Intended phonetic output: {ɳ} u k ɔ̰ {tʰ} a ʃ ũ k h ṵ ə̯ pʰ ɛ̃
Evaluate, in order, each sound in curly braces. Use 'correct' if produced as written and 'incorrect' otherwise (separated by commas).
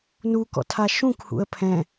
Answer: incorrect, correct